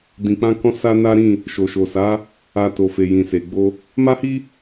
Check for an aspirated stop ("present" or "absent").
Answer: absent